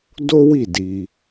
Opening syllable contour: high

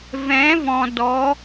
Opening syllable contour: rising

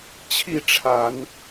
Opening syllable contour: falling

